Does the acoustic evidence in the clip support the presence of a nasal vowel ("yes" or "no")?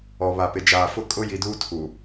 no